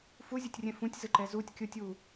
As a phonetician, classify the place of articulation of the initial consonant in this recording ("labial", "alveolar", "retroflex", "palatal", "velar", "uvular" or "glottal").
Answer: labial